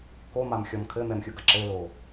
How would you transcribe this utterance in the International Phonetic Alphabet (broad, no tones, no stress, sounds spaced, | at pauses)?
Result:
k o m a m xʲ ɔ m kʰ ɘ m ɛ m xʲ u ɡ ɐ ǁ ɘ l o